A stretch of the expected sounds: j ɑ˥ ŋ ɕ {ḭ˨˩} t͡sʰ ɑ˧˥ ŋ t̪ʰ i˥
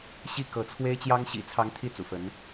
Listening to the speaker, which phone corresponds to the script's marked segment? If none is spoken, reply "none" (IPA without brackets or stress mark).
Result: ḭ˨˩